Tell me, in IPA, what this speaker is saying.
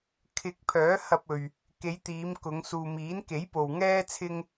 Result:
kʰ ɪ˨ k̚ pʰ œː˨˥ h ɐ˧ p̚ ɵ˨ ɥ | k e˨˧ j t̪ iː˨˧ m k ʊ˨˧ ŋ s uː˨ m iː˨˥ n k e˨˥ j p o˨ w ŋ ɛː˥ t͡sʰ ɪ˥ ŋ

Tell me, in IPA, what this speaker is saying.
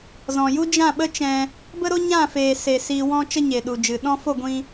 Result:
z ɔ̃˨ j u˦ d͡ʒ ã˦˨ ɓ ə˦ t͡ʃ ɛ̃˧ | b ə˧ ɾ o˧ ɲ ã˦˨ f eː˨ s e˨ s iː˧ w ɔ̃˦ t͡ʃ ə˦ ɲ e˨ ɗ u˨ d͡ʒ ɨ˨ ɗ ɔ̃˧ f o˦˨ ɡʷ ĩ˧

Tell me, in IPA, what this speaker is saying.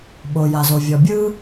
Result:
ɓ o˩ j a˩ z o˩ vʲ ɔ˩ bʲ ɯ˥

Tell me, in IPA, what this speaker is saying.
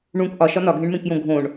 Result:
ɳ ũ k ʔ ɒ ʃ ɒ n ɒ ɡʱ ẽ ɳ m ẽ k j õ ɡʱ õ ɳ

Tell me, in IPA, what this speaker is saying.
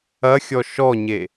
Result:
ɐ xʲ ɔ ʃ ɔ ɲ e

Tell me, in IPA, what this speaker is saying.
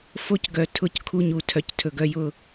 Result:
f o˦˨ c ɡ œ˨˩ tʰ ʊ˦˨ c kʰ u˦˨ ɲ u˨˩ tʰ œ˨˩ c tʰ ɵ˨˩ ɡ œ˦˨ j ʊ˦˨

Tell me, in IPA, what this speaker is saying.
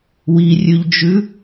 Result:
w i rʲ ʉ ʎ d͡ʒ ʉ

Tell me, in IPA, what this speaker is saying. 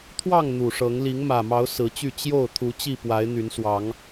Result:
t̪ʰ w ɑ˥˨ ŋ n̪ u˨˩ ʂ ɤ˨˦ ŋ l i˨˦ ŋ m ä˨˩ m ɑ˨˦ ʊ̯ s ɹ̩˨˦ t͡ɕ y˥˨ t͡ɕ j o˥˨ ʊ̯ t̪ʰ u˨˦ t͡ɕ i˥˨ p w a˨˦ ɪ̯ n̪ y˨˦ n s w ɑ˨˦ ŋ

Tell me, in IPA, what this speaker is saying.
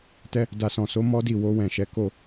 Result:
t ɛ˧ | d a˨ s ɔ̃˨ s o˨˦ m ɔ˦ d i˦˨ w o˧ w ɛ̃˨ ʃ ɛ˨˦ k o˦˨

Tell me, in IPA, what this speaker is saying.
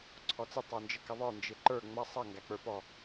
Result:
ǀʰ ɔ t͡s ɪ tˤ ə˞ n d͡ʒ ə k ɪ ðˤ ə˞ n d͡ʒ ɪ ǃ ə˞ ŋ͡m ʌ sˤ ʌ ŋ ɡ æ k͡p ə˞ p ɔ

